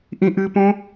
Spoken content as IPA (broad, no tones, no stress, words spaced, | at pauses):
ʔĩʔɨpõ